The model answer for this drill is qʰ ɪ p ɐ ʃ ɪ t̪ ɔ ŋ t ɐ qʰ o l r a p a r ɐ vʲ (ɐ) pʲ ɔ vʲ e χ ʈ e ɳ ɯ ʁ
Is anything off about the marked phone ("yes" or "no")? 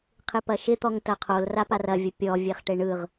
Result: yes